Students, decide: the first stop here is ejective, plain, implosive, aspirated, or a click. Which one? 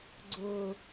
click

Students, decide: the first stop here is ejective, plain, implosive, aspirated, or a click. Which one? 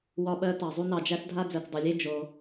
implosive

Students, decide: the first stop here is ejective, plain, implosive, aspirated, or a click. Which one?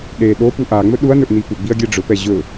implosive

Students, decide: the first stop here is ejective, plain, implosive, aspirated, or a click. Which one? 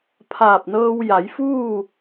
aspirated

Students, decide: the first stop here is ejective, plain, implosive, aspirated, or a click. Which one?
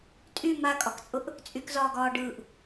ejective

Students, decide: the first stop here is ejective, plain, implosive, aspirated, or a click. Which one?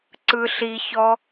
click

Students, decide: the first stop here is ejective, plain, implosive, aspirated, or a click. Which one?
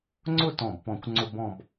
click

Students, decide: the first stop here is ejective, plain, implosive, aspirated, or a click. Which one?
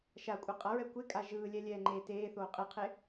ejective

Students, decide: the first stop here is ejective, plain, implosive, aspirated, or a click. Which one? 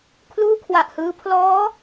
aspirated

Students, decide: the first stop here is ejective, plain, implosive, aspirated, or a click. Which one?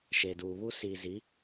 plain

